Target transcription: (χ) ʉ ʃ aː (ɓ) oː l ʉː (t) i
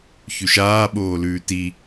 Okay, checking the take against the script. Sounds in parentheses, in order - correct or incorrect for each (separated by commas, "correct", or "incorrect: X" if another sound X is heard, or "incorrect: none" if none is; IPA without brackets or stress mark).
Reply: incorrect: ç, correct, correct